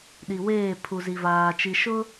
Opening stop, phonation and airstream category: implosive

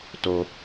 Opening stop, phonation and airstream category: plain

